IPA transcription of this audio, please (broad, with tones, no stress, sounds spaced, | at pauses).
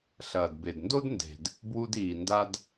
ɬ ɐː˩ d b e˩ d n d o˥ d n d e̤˩ d | b w u˧ d iː˩ n d a˧ d